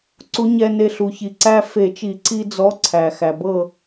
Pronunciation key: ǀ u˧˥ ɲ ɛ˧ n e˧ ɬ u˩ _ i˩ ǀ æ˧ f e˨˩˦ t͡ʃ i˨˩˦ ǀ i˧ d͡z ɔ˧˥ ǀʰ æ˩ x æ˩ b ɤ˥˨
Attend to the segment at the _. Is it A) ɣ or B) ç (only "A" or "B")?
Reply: B